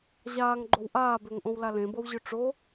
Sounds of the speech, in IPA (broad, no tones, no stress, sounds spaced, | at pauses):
ʑ aː ŋ ɡ͡ǃ o w ʔ aː b ʏː ŋ ʔ õ w l a l ẽ b ɤ w ʑ ʏ ʈ͡ʂ o